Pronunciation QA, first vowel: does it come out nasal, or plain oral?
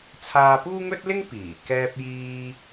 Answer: oral